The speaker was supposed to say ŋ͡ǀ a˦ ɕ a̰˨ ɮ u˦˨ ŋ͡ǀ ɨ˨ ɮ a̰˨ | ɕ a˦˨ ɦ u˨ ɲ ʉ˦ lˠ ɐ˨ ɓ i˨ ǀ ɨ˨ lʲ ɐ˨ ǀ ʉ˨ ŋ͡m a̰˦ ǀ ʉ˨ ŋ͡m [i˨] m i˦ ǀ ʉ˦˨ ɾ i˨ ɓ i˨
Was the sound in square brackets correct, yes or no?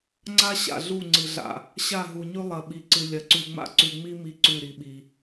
no